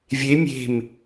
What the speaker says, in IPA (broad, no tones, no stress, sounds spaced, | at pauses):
vʲ e mʲ e̤ m